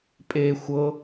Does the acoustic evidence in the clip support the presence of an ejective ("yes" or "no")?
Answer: yes